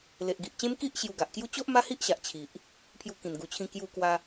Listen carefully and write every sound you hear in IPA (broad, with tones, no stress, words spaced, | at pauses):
le˨ʔɡi˨ʔt͡ɕẽ˦m ki˦ʔ ɕju˧ɡa˨ʔkju˦ t͡ɕo˦ʔ ma˦hi˦ʔɕa˨ʔ t͡ɕʰi˨ʔ | pʰju˧kĩ˨˩nɡu˨˩t͡ɕʰĩ˧ kju˧kwa˧